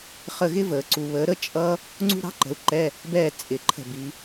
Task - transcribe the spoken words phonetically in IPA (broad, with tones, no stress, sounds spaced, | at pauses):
χ ə˦˨ ɣ ɪ˥ v əː˨ ǀ u˨ β əː˨˦ ɾ ə˥ t͡ʃʼ ʌ˥ | ŋ͡ǀ ṳ˥ ɾ ɑ̤˧˥˧ ǃ ə̤˨˦ u̯ ǃ ɛ˧˥˧ | b ɛː˦˨ t͡sʼ ɪ˨˩˦ ǃʰ ə̤˦˨ b i˨˦